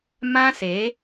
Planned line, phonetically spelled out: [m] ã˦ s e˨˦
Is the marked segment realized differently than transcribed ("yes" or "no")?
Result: no